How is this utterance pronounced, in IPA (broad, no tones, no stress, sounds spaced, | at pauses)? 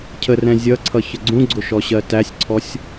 cʰ ə r ɛ̃ zʲ ʌ ǀʰ ʌ ç ə ɡ͡ǀ ũ ɡ͡ǀ ʊ ʃ ɔ ɕ ɜ t æ sʲ ǀʰ ɔ sʲ